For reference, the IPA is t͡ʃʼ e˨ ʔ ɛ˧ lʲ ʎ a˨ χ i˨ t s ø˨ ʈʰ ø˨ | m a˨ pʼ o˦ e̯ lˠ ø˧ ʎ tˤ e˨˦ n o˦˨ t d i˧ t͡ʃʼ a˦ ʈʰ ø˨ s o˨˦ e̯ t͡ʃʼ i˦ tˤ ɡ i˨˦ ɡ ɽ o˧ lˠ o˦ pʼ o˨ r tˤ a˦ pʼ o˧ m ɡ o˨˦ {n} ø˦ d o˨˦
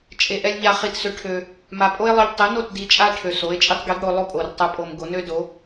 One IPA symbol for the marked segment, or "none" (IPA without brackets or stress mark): n